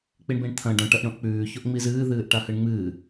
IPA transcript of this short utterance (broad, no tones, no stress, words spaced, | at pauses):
k͡piɳbĩɳt̪ʰɐ̃ ɖõ ʈɐʔɳõʔk͡pʉː çoʔŋ͡mizɨː ðɨːʔʈahɨɳŋ͡mɨː